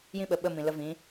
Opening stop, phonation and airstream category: implosive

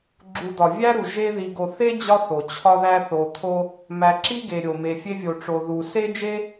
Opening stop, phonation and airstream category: click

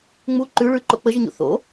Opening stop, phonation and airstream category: click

